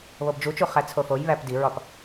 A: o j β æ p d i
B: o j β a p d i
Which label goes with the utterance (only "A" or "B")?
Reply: A